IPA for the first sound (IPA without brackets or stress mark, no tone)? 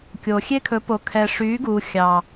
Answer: kʲ